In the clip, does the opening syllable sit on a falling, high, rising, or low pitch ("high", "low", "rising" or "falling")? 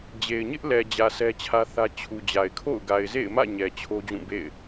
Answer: low